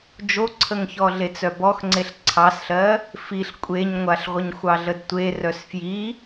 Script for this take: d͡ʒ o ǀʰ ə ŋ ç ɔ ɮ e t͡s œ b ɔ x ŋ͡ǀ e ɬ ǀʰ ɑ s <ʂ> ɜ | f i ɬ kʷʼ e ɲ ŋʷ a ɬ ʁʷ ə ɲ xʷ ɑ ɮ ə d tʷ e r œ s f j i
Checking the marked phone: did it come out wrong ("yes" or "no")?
yes